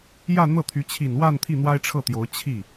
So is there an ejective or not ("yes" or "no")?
no